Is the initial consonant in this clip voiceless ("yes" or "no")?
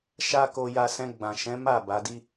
yes